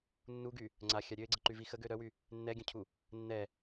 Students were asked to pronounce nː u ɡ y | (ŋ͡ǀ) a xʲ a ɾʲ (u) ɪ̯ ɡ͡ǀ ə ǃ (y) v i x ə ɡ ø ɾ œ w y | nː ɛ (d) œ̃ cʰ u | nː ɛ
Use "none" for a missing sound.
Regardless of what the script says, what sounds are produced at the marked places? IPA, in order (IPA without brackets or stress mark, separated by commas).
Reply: ŋ͡ǀ, ø, y, ɡʲ